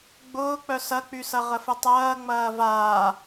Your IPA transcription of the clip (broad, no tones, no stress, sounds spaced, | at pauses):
ɡ͡b ʊː k͡p œ s ɐ k͡p y s ɐ ʁ ə f ə tˤ ɐː ŋ͡m ɐː v aː